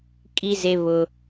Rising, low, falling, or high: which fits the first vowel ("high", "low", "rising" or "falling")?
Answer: high